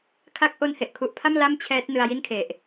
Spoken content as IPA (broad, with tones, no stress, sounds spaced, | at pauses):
kʰ a˦˥ k̚ ʔ o˧ n h e˨˩ ʔ kʰ u˨˩ ʔ pʰ a˥˩ m l a˥˩ m t͡ɕʰ ɛː˦˥ t̚ n ɯ˧ a̯ j i˥˩ n kʰ e˨˩ ʔ